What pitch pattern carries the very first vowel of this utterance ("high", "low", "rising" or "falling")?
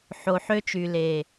low